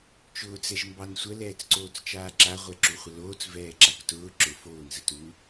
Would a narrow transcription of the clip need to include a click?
yes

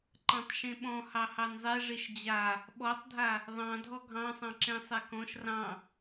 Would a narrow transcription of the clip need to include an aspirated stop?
no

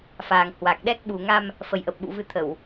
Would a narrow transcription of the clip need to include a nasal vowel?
no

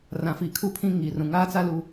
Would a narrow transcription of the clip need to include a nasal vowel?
yes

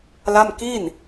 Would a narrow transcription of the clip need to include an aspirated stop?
no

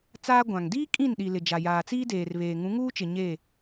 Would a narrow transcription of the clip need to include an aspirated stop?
no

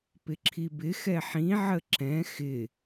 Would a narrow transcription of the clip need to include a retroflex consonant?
no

